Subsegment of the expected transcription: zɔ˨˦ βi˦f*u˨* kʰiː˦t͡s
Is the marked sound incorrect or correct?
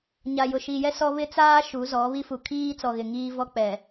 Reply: correct